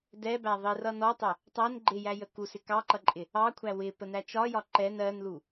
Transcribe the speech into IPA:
d ɛ b æ ðˤ i r ʌ n ɔ tˤ ɛ | tˤ æ n ɡ͡ǃ ɪ j æ j ə k u s ɪ k ɑ ǃ ʌ ǃʼ ɪ | ɑ kʷʰ æ w ɪ p ə n æ t͡ʃ ɒ j ɒ ǃ ɛ n ɜ n l u

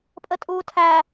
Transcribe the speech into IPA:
pʼ ə tʼ uː tʰ æ

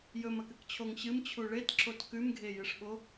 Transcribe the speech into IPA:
j ɵ m ɐ k ɨ k t͡ɕʰ o ŋ ɕ ɨ m t͡ɕʰ u ɭ e t ǁ o t k ʉ m ɡʱ e j ɨ ʂ ɓ o

